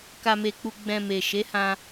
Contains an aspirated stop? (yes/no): no